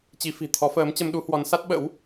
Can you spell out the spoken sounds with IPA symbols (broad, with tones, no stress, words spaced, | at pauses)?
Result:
t͡ɕi˨˦fi̤˨˩ t̪ʰɔ˨˦fəː˨˦m t͡ɕə˧mɗu˨˦hwɔ˨˦n sa˦˥t̚ɓə̰˧˥w